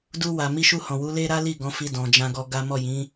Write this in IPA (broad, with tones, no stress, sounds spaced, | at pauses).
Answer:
d u˧ w a˨ m i˧ ʃ u˧ h ɔ̃˨ w u˨˦ l e˦ ɾ a˦ l i˦˨ ɡ ɔ̃˨˦ f i˧ d ɔ̃˨ d͡ʒ ã˧ ɡ ɔ˧ ɡ a˦ m ɔ˦˨ j ĩ˨˦